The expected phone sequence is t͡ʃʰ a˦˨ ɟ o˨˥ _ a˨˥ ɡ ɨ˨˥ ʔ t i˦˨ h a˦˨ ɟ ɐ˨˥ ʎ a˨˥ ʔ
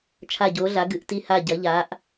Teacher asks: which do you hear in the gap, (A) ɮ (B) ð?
A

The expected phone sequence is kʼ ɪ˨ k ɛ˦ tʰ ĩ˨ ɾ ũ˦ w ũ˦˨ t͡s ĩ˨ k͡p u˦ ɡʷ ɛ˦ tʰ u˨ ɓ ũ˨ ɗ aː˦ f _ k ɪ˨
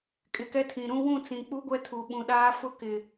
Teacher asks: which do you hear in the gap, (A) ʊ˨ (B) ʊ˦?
B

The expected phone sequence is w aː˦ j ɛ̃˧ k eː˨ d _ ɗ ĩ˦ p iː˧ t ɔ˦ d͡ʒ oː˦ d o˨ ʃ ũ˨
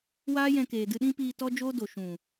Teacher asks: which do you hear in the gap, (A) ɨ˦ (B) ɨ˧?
B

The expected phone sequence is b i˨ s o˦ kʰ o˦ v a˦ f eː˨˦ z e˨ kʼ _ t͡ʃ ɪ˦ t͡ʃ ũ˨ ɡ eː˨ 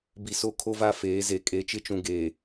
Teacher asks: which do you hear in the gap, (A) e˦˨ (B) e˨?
B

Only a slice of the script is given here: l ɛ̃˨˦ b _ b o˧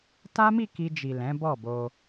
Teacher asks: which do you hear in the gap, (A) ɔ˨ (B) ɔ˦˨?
B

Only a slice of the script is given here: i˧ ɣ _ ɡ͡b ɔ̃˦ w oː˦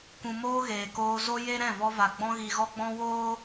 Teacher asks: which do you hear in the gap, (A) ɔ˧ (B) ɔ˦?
B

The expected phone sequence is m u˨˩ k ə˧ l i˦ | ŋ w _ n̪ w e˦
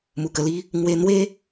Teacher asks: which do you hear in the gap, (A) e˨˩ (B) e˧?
B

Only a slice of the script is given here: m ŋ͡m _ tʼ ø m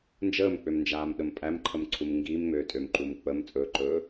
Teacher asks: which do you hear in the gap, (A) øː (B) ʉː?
A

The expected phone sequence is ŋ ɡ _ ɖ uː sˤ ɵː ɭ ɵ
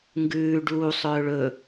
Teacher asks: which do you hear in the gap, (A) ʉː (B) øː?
A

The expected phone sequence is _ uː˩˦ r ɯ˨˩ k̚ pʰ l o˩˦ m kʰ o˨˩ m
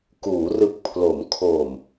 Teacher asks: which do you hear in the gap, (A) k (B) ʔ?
A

